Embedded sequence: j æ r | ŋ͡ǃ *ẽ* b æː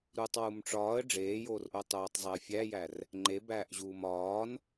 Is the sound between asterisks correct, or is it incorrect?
incorrect